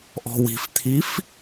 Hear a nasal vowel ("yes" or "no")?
no